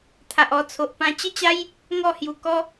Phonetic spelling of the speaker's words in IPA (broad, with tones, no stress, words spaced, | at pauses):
t̪ʰa˨ʔɔ˧t͡sʰo˨ʔ pã˧t͡ɕə˥˧t͡ɕa˦j | ŋɔ˥˧hju˨˩ kɔ˦